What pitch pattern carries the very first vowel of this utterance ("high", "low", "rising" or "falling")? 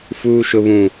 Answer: high